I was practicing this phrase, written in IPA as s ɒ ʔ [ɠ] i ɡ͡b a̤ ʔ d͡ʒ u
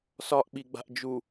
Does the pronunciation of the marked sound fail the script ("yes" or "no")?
yes